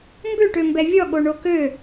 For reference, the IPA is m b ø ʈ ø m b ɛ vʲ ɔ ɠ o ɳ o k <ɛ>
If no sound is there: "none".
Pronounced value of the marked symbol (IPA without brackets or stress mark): ø